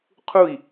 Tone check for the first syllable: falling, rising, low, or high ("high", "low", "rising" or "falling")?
falling